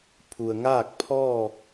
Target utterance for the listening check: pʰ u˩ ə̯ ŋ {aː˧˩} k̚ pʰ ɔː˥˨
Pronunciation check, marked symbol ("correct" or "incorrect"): incorrect